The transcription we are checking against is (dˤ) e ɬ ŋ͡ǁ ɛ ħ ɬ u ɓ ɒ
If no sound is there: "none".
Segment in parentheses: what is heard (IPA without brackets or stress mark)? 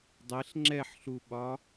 dˤ